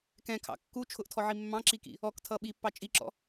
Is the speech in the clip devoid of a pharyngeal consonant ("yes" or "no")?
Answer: no